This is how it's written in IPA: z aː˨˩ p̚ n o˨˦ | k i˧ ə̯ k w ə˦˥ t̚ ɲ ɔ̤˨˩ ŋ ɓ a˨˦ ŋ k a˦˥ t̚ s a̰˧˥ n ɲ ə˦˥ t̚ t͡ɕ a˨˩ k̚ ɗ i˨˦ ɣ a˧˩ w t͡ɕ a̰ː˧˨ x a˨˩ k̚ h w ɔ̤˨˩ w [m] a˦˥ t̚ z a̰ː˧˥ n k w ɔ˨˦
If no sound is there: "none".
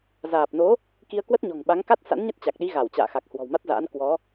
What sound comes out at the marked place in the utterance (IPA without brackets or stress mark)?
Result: m